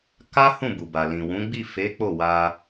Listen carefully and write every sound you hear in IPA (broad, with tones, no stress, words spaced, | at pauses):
ka˦hũ˦˨ bu˨ba˨ lĩ˨wũ˨˦ ɡ͡bi˦˨fe˨˦k͡po˦˨wa˧